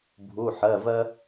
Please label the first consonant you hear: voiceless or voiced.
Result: voiced